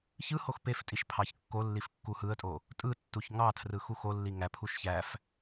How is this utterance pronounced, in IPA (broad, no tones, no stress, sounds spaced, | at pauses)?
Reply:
ç ɯ h o x p e f tʼ i ʃ pʰ ɑ ç kː o lː i f kː u h ɯ ə̯ tʼ o | tʼ ɯ tː u ç ŋ ɑ tʰ r ɯ x u x o lː i ŋ æ pʰ u ʃ ç æ f